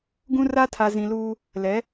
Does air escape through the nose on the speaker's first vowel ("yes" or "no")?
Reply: yes